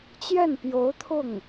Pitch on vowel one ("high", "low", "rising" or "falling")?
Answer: falling